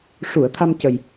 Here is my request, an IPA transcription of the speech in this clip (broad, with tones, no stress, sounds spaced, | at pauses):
ʂ u˨˩˨ ə̯ t̪ʰ a˧ m c ə˨˩ j